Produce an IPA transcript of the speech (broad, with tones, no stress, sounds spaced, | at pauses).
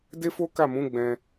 d e˦ f o˦ k a˦˨ m ũ˨˦ ɡ͡b ɛ̃˧